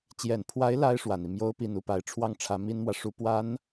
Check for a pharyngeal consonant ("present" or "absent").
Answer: absent